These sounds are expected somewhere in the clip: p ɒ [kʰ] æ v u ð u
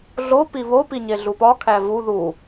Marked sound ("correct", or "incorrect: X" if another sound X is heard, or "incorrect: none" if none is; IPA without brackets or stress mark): correct